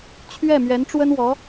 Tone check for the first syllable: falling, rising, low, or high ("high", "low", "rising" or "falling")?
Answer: falling